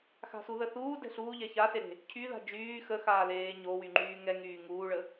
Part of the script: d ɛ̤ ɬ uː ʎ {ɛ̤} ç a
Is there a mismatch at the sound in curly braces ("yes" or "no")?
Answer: yes